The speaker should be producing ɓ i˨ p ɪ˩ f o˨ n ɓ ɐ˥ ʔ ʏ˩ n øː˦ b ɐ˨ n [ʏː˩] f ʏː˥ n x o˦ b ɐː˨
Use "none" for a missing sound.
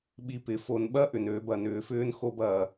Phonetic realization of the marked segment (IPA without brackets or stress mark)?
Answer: ʏː˨